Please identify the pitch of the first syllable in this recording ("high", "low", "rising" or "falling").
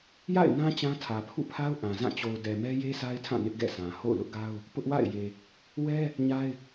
falling